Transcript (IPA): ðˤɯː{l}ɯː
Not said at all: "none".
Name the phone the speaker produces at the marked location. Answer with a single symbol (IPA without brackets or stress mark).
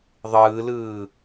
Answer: l